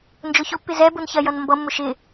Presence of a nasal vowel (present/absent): absent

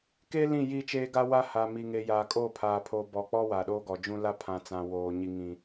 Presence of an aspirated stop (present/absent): present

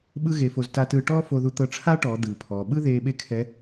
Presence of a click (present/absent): absent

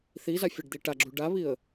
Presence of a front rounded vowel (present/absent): absent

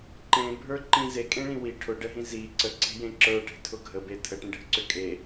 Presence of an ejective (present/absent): present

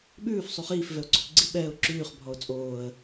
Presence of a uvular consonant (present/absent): present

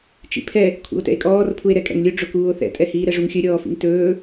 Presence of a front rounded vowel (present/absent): absent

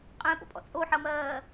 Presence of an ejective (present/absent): present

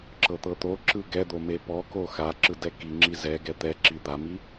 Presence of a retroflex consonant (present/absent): absent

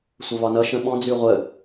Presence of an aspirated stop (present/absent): absent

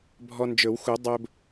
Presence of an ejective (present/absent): absent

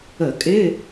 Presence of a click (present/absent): absent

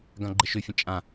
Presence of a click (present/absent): present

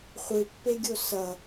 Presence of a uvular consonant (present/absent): present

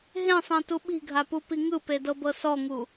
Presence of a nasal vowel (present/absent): present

